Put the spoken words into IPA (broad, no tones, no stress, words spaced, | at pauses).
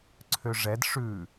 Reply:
ǀʰøʐɛd ʂʉ